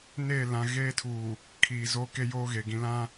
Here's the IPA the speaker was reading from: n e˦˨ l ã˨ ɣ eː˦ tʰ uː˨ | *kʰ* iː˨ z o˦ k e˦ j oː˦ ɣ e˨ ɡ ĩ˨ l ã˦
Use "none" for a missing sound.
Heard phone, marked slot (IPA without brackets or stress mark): kʰ